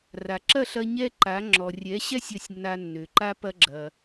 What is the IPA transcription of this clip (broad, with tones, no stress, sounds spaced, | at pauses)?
r a˩ ǁ ɐ˥˩ ɬ ɐ˧ ɲ ɛ˥ ǃ a˩˥ ŋ͡ǁ ɔ˩ rʲ ɛ˩˥ ɕ ɛ˥ sʲ ɐ˥˩ sʲ nː a˧ nː ø˩ ǃ a˥ p ɐ˧ ɡ͡ǁ ɐ˩